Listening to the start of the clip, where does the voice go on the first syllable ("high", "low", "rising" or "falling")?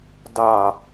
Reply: low